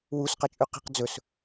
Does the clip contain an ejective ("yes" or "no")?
yes